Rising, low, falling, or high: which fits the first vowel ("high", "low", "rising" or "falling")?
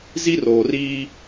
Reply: high